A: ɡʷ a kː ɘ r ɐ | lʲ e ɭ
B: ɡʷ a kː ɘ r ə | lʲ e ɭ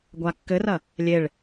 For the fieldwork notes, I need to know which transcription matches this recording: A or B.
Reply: A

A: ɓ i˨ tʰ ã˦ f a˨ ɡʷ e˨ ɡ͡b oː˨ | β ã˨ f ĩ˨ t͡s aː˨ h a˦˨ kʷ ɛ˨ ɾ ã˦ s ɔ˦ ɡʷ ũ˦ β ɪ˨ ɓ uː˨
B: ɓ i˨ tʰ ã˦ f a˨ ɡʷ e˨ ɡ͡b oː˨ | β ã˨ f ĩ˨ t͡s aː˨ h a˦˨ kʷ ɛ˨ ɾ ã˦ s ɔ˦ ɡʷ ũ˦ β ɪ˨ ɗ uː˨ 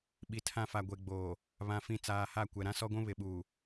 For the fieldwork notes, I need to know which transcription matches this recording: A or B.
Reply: A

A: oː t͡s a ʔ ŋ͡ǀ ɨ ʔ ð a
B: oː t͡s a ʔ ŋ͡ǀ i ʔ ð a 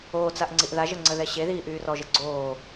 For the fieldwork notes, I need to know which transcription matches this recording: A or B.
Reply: B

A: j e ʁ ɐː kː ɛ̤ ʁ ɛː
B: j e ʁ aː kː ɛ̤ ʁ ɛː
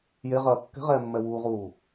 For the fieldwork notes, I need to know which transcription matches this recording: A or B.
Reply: A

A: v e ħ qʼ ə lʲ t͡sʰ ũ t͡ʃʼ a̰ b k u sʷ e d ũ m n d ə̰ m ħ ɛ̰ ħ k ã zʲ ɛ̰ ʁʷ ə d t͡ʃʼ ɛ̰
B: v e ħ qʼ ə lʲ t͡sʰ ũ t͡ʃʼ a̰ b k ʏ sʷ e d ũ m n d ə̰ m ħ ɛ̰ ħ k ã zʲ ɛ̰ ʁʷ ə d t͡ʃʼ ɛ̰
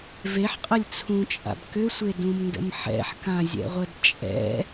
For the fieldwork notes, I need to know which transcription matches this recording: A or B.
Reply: B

